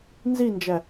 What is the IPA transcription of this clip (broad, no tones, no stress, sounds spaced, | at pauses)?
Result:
n z i n d͡ʒ æ